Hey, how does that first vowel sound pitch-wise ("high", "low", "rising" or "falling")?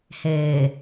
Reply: low